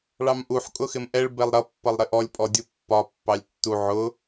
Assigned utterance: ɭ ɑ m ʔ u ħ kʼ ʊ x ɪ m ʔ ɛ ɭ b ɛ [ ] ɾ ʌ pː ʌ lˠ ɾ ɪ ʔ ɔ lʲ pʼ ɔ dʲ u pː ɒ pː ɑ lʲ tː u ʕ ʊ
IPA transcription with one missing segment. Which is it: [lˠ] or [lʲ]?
lˠ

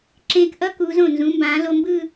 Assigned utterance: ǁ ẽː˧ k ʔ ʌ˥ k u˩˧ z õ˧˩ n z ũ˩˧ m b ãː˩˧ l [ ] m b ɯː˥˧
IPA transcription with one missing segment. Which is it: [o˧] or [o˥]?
o˧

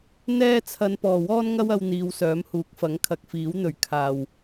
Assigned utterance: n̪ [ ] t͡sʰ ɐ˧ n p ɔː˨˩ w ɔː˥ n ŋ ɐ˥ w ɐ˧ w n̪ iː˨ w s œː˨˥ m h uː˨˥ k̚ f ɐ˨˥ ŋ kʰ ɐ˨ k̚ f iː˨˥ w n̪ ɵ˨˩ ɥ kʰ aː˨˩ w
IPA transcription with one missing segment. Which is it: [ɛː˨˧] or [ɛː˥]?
ɛː˥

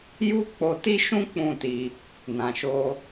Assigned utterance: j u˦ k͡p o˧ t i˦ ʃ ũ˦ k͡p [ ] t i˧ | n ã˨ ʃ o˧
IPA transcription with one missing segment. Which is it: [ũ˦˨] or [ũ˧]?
ũ˦˨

